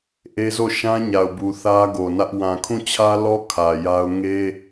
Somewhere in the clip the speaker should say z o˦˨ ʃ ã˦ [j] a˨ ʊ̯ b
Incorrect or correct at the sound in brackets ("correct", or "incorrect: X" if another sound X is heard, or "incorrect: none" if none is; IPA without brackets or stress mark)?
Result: incorrect: ɲ